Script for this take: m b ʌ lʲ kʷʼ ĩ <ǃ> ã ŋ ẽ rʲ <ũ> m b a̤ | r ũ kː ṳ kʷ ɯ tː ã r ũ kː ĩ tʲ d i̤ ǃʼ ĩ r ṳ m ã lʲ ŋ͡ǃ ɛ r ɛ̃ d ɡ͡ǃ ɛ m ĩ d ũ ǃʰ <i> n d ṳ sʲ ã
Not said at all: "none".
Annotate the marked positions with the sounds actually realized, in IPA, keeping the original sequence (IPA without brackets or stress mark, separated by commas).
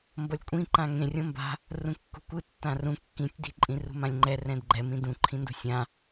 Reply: ǃ, õ, ĩ